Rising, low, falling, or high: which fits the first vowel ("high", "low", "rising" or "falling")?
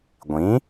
rising